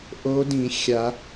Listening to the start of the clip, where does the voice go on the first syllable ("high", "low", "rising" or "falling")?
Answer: rising